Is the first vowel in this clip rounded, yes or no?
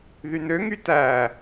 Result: yes